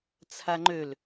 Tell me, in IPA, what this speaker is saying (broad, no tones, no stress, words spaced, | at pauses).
t͡sʰaŋ͡ǃøl